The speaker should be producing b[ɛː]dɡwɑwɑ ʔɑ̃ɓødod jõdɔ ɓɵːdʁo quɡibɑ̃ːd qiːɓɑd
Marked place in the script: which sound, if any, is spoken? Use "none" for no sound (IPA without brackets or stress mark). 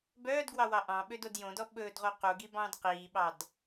œː